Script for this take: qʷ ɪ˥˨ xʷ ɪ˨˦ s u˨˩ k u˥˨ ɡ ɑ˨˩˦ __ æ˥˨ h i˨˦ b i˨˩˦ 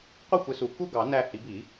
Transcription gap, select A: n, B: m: A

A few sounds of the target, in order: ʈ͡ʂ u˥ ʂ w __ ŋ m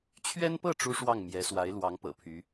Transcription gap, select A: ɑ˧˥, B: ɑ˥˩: B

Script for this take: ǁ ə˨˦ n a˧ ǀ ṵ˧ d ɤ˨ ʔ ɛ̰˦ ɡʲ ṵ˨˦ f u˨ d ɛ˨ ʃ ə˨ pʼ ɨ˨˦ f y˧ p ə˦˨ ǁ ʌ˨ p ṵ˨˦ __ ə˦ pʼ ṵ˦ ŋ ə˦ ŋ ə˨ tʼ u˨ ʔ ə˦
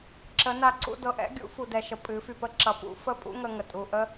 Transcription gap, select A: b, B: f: B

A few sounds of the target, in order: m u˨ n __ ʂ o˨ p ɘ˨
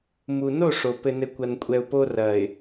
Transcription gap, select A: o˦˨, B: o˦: A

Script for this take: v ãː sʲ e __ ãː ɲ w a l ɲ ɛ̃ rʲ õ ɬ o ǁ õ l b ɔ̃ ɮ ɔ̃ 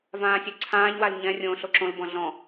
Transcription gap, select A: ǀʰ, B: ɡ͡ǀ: A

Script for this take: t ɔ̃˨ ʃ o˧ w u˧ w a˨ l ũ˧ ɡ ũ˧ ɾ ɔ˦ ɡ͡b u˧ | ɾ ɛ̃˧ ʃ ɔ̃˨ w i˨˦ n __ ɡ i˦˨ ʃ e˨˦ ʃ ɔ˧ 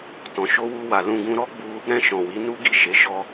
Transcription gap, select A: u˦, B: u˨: A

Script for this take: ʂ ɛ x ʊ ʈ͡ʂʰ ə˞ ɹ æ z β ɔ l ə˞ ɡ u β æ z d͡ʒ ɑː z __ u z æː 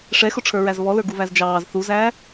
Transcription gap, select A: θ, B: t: A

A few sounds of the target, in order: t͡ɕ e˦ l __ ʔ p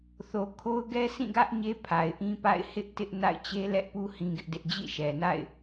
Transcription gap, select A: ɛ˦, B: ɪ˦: A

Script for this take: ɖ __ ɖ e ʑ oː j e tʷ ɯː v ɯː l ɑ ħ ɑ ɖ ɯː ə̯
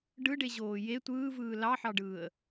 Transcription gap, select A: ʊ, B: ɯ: B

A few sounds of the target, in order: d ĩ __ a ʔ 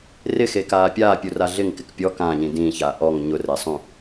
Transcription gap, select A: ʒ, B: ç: B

